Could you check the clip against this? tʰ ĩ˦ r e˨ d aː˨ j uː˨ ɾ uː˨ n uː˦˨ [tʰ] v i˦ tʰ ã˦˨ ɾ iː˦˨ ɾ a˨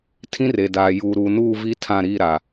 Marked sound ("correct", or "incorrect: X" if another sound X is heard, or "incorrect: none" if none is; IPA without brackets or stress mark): incorrect: none